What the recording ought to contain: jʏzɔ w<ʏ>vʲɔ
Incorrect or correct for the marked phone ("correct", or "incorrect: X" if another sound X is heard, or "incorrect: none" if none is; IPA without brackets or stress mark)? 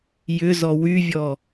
incorrect: y